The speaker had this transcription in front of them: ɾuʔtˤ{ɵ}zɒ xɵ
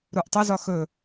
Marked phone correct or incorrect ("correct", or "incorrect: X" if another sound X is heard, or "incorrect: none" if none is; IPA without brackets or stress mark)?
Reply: incorrect: ə